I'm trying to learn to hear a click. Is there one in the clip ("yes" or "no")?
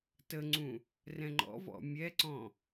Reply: yes